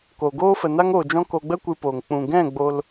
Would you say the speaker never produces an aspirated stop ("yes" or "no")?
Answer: yes